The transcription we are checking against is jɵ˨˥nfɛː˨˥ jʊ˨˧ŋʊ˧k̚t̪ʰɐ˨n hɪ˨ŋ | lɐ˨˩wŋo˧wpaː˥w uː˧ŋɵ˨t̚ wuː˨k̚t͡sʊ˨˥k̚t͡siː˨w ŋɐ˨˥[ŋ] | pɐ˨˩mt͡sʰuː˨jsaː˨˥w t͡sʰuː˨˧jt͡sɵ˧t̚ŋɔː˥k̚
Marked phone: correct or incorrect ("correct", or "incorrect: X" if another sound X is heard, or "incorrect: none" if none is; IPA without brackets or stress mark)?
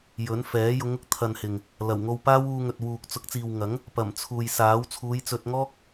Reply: correct